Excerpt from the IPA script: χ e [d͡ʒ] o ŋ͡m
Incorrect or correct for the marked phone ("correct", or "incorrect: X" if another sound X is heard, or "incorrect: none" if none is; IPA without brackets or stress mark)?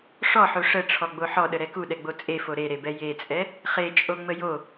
incorrect: t͡ʃʼ